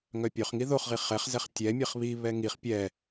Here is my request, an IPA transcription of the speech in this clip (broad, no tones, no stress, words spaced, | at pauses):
ŋœpʲœχŋi ðoχʁi χɛχzɛχ tʲɛ mʲɛχβiβɛ ŋiχ pʲɛ